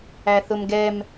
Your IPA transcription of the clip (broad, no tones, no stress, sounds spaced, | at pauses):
æ θ ʊ m ɡ ɛ m